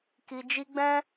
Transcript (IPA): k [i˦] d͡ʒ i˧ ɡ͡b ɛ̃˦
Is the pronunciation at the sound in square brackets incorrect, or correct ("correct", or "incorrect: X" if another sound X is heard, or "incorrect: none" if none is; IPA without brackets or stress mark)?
incorrect: i˨